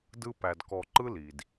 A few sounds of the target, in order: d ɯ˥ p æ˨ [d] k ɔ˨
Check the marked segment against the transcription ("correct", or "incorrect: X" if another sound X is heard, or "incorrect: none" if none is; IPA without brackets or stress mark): correct